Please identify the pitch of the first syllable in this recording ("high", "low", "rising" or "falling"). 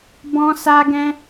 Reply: high